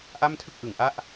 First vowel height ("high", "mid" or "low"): low